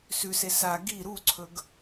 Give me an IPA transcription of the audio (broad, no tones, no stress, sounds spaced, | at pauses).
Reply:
s ʉ s e s a ɡ i ɾ u ǀʰ ɵ ɡ